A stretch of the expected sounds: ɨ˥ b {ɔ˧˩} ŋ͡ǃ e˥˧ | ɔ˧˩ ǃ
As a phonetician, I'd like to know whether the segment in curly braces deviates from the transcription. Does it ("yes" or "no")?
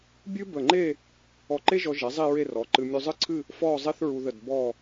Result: yes